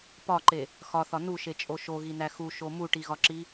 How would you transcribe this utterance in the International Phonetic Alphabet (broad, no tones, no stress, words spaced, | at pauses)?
pɒǃe | xɒθɒ nuʃet͡ʃʼo ʃoɣinæ xuʃo muʈiɣɒǁi